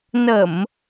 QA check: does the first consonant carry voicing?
yes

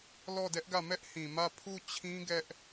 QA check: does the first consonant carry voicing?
yes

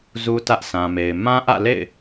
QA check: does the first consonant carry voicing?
yes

